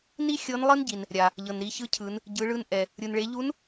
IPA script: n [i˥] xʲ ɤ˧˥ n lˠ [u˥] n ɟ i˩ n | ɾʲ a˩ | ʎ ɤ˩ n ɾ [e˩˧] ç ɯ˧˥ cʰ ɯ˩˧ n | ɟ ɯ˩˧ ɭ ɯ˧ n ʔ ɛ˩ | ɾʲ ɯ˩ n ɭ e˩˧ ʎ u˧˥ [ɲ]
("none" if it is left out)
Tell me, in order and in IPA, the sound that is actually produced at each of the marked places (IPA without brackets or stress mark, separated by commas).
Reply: i˥, ɯ˥, i˩˧, n